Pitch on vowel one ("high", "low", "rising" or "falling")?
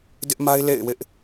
high